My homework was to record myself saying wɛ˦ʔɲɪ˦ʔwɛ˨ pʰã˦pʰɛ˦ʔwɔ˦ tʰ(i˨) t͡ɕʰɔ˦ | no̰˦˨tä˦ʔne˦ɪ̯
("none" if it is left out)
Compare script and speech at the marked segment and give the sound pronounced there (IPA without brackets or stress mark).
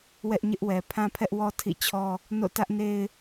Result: ḭ˦˨